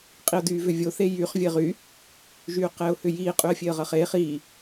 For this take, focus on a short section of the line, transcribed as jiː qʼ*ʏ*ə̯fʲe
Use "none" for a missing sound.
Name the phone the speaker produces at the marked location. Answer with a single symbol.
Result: y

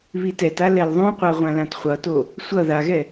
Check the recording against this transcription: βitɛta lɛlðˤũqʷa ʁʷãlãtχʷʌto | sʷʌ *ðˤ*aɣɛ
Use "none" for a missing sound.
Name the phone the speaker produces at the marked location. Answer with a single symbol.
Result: ð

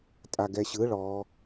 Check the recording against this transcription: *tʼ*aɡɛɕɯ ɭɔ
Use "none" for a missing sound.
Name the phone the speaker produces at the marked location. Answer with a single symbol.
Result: tʼ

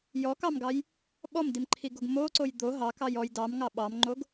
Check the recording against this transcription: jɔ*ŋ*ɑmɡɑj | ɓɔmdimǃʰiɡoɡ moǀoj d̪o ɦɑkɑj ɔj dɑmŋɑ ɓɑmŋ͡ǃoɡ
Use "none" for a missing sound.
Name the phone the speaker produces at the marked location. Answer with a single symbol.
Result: k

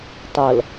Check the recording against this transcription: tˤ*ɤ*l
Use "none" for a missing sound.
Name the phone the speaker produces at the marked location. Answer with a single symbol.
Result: ɤ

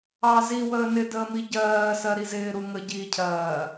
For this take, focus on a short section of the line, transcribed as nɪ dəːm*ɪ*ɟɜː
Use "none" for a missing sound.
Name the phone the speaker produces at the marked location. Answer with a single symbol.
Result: i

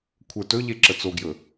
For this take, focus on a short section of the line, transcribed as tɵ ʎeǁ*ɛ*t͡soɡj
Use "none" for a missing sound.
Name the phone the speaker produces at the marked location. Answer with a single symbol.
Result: ə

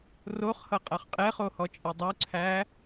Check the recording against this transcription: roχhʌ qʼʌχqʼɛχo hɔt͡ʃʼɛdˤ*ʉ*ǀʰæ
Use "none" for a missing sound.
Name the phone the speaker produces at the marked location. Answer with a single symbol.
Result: u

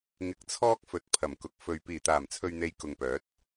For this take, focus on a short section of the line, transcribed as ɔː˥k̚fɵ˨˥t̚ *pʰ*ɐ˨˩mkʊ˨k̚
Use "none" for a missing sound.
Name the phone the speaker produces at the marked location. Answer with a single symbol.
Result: pʰ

